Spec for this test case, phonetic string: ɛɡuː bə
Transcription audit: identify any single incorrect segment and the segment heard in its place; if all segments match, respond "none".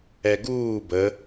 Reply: none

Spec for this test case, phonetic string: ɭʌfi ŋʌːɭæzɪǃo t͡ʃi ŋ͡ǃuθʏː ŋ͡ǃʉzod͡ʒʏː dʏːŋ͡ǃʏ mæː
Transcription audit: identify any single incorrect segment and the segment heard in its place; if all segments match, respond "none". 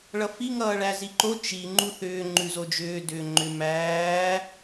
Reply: ɪ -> i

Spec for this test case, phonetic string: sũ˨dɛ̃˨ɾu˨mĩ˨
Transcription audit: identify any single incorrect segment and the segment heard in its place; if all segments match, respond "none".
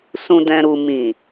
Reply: none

